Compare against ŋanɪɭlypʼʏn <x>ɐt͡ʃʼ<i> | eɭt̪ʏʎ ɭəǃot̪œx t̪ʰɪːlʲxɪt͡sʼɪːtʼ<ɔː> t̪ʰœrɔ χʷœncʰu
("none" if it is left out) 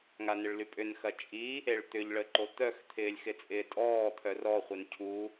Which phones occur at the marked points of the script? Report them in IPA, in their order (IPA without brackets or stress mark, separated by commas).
x, i, ɔː